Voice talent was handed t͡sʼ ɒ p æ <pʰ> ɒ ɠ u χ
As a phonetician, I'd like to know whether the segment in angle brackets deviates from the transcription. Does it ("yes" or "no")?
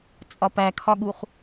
yes